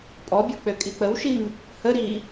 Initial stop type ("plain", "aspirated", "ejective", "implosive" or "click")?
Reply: ejective